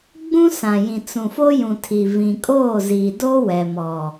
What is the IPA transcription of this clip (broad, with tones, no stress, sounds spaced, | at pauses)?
ɡ͡b ũ˦ s ã˨ j ĩ˨ t͡s ũ˨ f o˦ j ũ˨ tʰ i˨ v ĩ˨ kʼ oː˦˨ z iː˨ d o˦ w ɛ˨ m ɔ˨